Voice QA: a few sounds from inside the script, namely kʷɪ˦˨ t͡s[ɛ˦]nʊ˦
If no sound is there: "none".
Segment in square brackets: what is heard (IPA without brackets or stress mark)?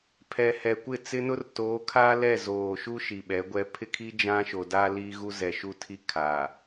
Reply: ɪ˦